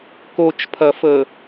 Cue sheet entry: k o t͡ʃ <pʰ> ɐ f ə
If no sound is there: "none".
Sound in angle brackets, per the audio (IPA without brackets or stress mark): pʰ